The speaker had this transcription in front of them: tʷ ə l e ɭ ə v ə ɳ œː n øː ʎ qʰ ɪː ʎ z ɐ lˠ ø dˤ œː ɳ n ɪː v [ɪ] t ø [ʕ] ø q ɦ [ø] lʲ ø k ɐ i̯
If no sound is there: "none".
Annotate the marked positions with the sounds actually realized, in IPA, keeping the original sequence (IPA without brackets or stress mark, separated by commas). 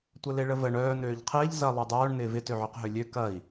ɪ, ʕ, ø